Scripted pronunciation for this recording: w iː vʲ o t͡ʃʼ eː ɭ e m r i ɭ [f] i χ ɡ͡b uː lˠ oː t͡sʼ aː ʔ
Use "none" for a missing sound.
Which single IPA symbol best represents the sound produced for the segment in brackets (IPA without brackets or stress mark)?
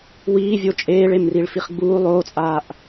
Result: f